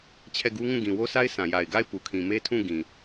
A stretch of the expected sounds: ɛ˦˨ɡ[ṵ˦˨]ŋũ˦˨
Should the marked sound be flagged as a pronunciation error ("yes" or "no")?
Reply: yes